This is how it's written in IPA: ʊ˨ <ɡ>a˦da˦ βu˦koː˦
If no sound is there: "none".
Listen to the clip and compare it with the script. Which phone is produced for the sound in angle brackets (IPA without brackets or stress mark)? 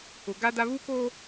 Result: ɡ